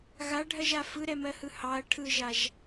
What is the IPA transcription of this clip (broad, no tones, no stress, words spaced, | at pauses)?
ɣaɖʱɜʒa fɯɾɛmɜhɯ hɑɐ̯ ʈʰɯʒaʒ